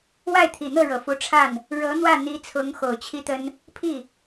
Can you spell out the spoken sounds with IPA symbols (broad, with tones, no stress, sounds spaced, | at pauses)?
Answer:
w a˥˩ ɪ̯ t̪ʰ i˨˩ n̪ ɤ˥˩ ɻ ɤ˨˩ f u˧˥ ʈ͡ʂʰ a˥˩ n | ɻ ɤ˧˥ n̪ w ä˥˩ n̪ i˧˥ t͡sʰ ʊ˧˥ ŋ x o˨˩ ʊ̯ t͡ɕʰ i˥ t̪ ə˥ n | pʰ i˥˩